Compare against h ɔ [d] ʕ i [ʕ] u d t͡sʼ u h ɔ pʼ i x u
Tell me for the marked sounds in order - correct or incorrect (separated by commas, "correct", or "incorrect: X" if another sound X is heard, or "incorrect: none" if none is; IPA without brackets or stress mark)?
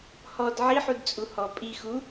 correct, incorrect: ħ